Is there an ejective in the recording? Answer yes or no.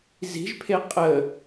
yes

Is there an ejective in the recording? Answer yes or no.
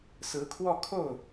no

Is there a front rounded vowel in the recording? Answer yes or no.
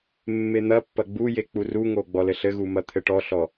no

